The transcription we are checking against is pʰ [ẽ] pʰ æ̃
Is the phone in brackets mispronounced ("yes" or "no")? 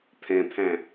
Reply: yes